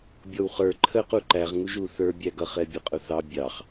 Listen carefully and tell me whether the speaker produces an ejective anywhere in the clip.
yes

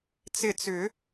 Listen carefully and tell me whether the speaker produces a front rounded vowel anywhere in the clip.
yes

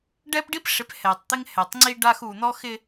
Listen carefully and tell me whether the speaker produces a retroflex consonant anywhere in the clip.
yes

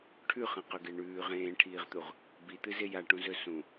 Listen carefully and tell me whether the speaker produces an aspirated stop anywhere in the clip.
yes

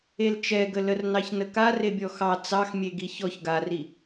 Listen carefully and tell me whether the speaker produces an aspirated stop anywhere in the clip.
no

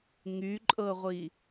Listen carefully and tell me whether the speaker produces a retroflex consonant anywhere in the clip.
no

